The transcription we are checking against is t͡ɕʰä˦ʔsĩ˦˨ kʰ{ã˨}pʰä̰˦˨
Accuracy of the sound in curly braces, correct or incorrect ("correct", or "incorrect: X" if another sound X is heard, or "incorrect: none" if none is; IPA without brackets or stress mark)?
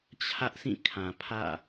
correct